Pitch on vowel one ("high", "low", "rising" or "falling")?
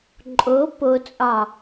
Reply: rising